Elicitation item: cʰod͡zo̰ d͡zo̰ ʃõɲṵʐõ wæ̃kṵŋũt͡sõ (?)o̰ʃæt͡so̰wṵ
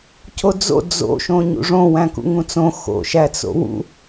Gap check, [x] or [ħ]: x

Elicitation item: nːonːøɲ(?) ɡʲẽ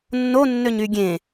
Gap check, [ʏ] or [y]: y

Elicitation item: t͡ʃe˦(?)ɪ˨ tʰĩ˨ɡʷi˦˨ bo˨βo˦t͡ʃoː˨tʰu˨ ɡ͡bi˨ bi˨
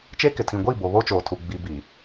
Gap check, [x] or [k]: k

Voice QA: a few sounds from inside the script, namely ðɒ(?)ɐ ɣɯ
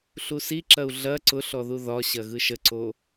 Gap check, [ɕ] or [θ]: ɕ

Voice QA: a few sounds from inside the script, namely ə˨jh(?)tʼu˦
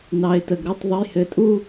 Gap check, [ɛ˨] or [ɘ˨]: ɘ˨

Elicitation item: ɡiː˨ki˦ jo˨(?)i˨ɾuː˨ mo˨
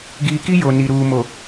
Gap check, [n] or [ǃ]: n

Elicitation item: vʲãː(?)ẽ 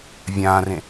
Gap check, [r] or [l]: r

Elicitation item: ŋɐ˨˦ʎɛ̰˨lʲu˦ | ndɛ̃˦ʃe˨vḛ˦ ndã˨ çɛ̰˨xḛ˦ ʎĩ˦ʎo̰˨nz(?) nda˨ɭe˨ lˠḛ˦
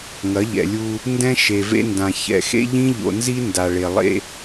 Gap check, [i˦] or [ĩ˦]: i˦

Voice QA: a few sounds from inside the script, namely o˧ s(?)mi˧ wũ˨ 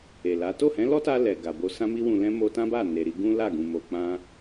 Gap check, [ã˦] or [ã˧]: ã˧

